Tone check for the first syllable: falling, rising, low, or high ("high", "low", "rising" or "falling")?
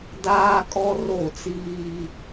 high